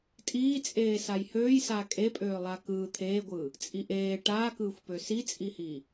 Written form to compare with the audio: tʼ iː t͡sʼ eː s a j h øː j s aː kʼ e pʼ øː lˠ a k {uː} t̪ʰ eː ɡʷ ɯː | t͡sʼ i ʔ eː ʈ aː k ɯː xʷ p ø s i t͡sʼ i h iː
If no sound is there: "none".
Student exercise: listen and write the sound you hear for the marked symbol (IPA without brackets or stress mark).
ɯː